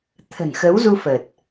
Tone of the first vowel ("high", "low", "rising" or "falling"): low